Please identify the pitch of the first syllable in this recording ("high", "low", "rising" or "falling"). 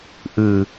low